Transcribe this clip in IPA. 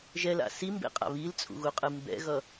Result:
ʒ ɛ l a̰ s i m b ḛ qʼ a̰ β i l t͡sʼ ṵ ɣ u qʼ ɯ m b ɛ̰ ɣ ʌ

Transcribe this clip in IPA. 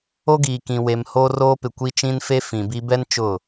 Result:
o˦ ɡ iː˨ k ĩ˨ w e˨ m h oː˦ r oː˦ p ɪ˨ kʷ i˦ t͡ʃ ĩ˦ n f e˦ f ĩ˨ b i˦ b ɛ˦ n t͡ʃ ʊ˦˨

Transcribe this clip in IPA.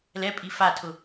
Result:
l ɛ pʼ i f a tʰ ʊ

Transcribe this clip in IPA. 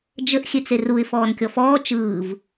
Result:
d͡ʒ ə ʔ xʲ e t͡s e r u ɪ̯ f ɔː n kʲ ɔ f ɔː t͡ʃ ɯː v

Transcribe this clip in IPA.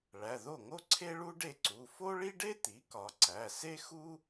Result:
ɭ æ˩˧˩ ð o˥˩ ŋ o˥ ǀʰ e˥ ɭ u˥ ɖ e˥˩ ǀ u˩˧˩ f o˥ ɭ i˥ ɖ e˥ t̪ i˩˥ k ɒ˩˧ ǀ æ˩˧˩ s e˥ x u˥

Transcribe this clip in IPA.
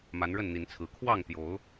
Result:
m a˨˦ n ɻ ə˥˨ n n̪ i˨˦ n t͡sʰ ɹ̩˨˦ kʰ w ɑ˥˨ ŋ t̪ j o˨˦ ʊ̯

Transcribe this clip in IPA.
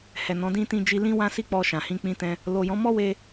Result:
h ɛ˨ n ɔ̃˨˦ d ĩ˧ t ĩ˧ d͡ʒ i˧ l ĩ˦ w ã˦ s i˦ k͡p ɔ˧ ʃ ã˨ h ĩ˧ k͡p ĩ˦ t ɛ̃˦ | l o˨ j ɔ̃˨˦ m ɔ˦ w e˧

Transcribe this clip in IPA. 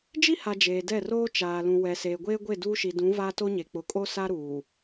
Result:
d͡ʒ i˦ h a˨ d͡ʒ eː˨ d ɛ˦˨ r oː˦ t͡ʃ aː˨ l ũ˨ w ɛ˨ s e˨ ɡʷ eː˦ ɡʷ e˦˨ d uː˦ ʃ i˨ d ũ˨˦ v aː˦ t o˦ ɲ e˨ k͡p ʊ˨ kʼ o˦ s a˦ ɾ uː˨

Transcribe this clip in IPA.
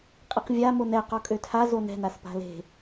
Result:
qʼ i q vʲ a m o n ɛ q ɔ kʼ ø tʰ a z o n ɛ̤ n a s p a̤ l e̤

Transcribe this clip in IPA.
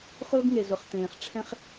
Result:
χ ʊː˦ ɡ ŋ e˨ z ʊ˨ χ t̪ ẽː˨ χ ʈ͡ʂʰ ɛ̃˦ χ

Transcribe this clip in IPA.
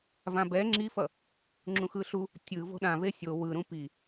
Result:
v ã b ɛ ŋ͡ǁ i f ʌ | ŋ͡ǁ ũ x ɯ ɬ u | tʲ ɯ v o̤ ɗ ã v e sʲ o w ɯ ɾ ũ p i

